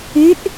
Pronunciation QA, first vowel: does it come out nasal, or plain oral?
oral